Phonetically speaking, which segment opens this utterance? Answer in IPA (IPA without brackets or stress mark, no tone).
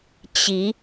t͡ɕ